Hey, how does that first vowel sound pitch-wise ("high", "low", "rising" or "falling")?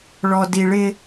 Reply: low